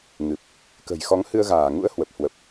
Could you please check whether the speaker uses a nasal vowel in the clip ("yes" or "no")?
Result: no